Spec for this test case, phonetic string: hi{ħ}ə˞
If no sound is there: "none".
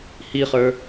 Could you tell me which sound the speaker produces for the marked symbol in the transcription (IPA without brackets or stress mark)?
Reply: χ